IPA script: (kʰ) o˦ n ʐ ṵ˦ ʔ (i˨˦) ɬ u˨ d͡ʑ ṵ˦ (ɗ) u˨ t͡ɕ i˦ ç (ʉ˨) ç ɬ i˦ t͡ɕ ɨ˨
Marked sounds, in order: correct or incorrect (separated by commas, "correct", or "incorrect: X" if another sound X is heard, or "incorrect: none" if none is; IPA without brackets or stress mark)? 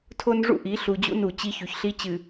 incorrect: tʰ, correct, incorrect: n, correct